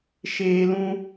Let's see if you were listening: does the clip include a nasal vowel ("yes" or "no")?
yes